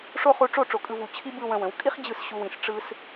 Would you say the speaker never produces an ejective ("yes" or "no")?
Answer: no